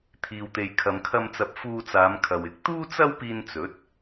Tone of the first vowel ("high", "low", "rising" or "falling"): low